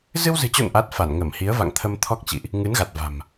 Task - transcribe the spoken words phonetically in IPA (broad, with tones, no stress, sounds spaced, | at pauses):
z ɨ˧ w z ɨ̤˨˩ t͡ɕ o̰˧˨ n ʔ a˦˥ t̚ f a˧˩ n ŋ ə˧˩ m h i˨˦ ə̯ v a̰˧˨ ŋ t̪ʰ ə˧ m t̪ʰ ɔ˦˥ k̚ t͡ɕ ḭ˧˨ ʔ | ŋ ɨ˨˦ n ɣ a˨˩ t̚ v a̤˨˩ m